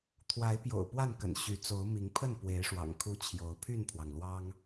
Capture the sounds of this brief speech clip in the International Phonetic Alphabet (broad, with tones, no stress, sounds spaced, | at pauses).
t̪ʰ w a˨˦ ɪ̯ p j o̰˨˩ ʊ̯ p w a˥˨ n k ə̰˨˩ n ɕ y˨˦ t͡s o˨˦ ʊ̯ m i˨˦ ŋ pʰ ə˥˨ n p w e˨˦ ɪ̯ ʂ w ɑ̰˨˩ ŋ kʰ u˦ t͡ɕʰ j o˨˦ ʊ̯ pʰ y˥˨ n pʰ w ɑ˩ ŋ l w ɑ˦ ŋ